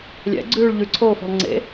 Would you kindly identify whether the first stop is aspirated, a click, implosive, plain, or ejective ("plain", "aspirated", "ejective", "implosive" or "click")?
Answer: click